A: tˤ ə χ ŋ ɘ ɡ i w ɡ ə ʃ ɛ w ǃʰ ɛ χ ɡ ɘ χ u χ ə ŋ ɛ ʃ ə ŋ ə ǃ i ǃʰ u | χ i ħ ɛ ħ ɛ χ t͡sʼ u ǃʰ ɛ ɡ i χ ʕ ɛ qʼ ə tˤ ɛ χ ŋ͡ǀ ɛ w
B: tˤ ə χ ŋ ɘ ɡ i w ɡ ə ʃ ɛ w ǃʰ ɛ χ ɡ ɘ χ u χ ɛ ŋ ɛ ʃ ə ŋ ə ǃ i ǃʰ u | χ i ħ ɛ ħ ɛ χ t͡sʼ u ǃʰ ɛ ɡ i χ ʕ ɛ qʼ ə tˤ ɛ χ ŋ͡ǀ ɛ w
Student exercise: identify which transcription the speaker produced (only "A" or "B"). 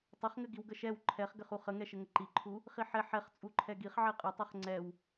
A